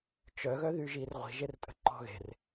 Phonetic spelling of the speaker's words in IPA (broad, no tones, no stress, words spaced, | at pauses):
t͡ʃœ ɣœðyʒirʁʷi̤ ʒertʼə̤ǃɔ̤ɣe̤r